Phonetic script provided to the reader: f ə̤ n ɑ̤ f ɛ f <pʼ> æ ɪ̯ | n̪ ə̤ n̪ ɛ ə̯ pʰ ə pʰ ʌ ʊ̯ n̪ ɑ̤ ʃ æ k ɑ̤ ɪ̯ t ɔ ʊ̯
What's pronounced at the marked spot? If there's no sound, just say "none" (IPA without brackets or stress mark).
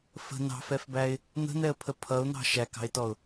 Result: b